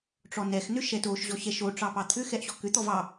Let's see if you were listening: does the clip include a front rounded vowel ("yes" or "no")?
yes